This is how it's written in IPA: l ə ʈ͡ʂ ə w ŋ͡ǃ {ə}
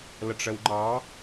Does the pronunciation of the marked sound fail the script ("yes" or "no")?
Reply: yes